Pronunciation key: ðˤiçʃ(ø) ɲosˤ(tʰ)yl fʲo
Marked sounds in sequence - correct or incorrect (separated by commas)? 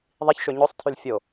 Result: correct, correct